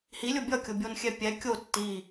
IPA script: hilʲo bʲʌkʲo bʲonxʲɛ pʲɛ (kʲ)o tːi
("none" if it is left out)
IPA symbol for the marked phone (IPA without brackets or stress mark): kʲ